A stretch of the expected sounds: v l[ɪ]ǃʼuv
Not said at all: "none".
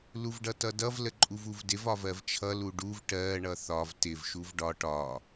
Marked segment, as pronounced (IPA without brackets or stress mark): ə